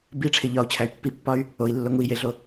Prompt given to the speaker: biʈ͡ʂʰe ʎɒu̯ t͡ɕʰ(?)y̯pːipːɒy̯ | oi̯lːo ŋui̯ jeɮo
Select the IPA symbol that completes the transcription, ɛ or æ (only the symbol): æ